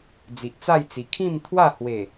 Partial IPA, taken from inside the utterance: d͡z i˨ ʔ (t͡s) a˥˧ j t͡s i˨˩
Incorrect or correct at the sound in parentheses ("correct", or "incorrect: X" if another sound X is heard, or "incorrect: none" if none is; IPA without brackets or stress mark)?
correct